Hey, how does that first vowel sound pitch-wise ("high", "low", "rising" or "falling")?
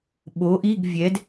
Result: rising